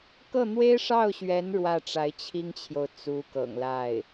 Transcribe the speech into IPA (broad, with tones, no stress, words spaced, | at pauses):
kɤ˥˩n̪we˥ɪ̯ʂɑ˥˩ʊ̯ɕɥɛ˧˥n ɻwä˥˩ʈ͡ʂa˧˥ɪ̯ t͡ɕʰi˥ŋt͡ɕʰjo˨ʊ̯ t͡su˧˥kɤ̰˨˩ŋla˥˩ɪ̯